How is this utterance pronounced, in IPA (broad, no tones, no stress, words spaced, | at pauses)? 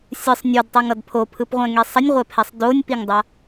sʲɯsˤ nʲodtˤɯŋʌd pʰopʰɯpʁʷɛ̃ŋe sˤʌnʲʁʷɛpʰɛsˤ donʲpiŋdˤa